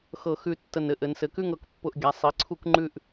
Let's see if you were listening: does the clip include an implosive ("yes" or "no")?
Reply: no